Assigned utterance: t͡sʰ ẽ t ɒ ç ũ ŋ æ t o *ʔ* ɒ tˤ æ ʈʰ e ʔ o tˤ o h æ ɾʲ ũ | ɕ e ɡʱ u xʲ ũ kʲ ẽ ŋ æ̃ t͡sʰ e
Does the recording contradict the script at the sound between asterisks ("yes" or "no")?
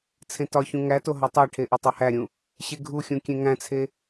yes